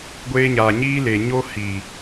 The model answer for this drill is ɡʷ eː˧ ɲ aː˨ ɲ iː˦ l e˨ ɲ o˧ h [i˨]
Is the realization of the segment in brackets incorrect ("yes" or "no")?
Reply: no